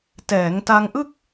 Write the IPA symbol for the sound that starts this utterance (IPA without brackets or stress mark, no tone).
t